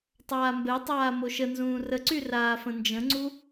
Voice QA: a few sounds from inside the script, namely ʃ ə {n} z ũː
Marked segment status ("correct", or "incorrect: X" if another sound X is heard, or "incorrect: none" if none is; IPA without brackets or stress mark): correct